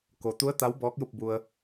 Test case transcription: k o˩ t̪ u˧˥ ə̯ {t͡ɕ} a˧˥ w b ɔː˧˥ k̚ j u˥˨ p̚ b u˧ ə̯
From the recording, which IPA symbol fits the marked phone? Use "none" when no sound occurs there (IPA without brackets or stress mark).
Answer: t̪